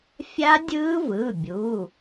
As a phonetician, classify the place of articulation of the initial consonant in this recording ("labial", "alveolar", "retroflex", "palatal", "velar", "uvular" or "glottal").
labial